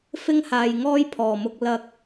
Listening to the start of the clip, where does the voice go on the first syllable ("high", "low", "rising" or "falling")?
high